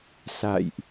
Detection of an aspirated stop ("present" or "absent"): absent